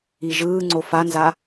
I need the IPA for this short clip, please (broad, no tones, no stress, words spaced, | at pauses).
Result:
iʒɯː ŋ͡ǀofanza